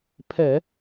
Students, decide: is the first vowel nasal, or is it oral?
oral